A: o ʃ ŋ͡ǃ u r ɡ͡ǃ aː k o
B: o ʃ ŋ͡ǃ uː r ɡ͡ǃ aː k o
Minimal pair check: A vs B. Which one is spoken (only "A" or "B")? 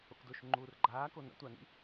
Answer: B